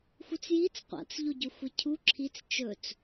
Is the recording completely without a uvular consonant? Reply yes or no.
no